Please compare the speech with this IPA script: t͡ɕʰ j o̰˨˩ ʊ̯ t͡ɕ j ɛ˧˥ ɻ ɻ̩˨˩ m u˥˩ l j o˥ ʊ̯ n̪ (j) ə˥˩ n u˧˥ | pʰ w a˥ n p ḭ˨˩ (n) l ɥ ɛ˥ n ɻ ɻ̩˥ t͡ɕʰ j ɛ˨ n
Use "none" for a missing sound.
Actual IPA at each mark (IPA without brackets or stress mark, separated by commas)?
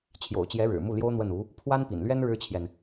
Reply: w, n